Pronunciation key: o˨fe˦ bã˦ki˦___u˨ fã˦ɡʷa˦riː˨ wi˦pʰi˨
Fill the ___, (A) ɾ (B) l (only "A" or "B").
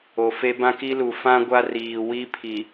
B